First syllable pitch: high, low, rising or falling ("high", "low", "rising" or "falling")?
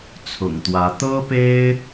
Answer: low